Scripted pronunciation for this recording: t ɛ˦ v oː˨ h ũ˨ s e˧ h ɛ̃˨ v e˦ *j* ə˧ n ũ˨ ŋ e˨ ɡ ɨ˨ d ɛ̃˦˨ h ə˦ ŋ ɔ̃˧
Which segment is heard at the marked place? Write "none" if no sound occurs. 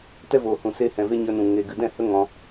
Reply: ɲ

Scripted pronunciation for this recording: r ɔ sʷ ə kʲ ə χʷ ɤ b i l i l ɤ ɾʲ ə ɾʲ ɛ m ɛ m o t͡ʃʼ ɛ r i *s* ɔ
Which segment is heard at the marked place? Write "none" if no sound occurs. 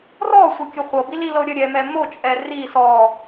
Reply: s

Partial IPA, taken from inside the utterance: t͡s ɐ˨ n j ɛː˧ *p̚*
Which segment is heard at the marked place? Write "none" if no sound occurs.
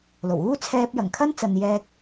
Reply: k̚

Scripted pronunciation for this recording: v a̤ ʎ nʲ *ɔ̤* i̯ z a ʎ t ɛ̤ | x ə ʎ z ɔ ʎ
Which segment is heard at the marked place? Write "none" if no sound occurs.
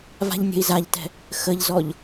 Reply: ə̤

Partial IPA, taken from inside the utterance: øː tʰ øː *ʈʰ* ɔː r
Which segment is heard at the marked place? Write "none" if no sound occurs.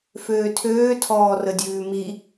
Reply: tʰ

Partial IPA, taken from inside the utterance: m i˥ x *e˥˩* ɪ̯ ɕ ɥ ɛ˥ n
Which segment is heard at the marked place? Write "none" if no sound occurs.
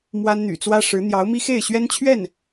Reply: e˥˩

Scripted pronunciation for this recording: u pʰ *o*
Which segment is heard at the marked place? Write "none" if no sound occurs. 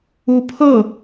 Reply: ɤ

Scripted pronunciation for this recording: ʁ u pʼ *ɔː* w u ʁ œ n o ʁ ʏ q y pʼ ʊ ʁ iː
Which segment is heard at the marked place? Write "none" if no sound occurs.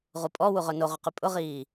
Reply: ɔ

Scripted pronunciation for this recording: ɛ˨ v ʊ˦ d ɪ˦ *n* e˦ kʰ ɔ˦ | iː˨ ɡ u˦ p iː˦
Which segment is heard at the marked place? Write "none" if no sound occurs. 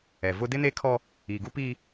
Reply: n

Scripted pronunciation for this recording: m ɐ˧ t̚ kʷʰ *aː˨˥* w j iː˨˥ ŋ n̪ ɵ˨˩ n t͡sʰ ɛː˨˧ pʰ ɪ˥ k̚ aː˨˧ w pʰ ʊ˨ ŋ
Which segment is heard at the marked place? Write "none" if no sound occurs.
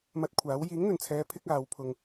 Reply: aː˨˥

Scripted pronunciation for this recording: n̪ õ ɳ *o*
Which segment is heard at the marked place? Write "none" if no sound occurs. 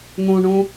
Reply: õ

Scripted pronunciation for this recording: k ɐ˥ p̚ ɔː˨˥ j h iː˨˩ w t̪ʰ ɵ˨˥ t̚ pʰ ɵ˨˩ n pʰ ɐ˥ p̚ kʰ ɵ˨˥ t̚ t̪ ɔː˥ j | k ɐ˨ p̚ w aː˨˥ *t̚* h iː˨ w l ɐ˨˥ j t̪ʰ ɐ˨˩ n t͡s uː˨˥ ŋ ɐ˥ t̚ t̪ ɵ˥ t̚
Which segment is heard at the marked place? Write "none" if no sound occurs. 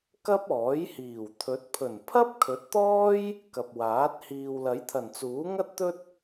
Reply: t̚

